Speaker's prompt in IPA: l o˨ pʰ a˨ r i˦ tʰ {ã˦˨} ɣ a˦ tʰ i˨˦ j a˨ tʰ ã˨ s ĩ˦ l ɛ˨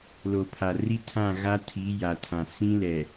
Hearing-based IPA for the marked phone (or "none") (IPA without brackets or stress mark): ã˦˨